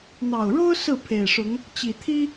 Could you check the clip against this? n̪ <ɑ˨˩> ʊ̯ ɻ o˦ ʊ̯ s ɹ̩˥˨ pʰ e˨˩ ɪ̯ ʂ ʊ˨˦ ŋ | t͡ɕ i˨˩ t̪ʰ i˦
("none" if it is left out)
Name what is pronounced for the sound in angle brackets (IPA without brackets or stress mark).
ɑ˨˩